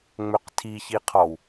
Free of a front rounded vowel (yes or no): no